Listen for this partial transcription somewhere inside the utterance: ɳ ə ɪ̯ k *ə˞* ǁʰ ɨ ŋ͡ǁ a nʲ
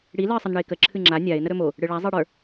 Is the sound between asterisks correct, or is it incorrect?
incorrect